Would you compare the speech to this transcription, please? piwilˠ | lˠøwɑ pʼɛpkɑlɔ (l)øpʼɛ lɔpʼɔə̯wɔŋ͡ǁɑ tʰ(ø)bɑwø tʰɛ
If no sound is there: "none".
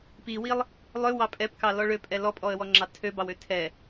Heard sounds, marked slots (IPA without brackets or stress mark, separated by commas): ɭ, ø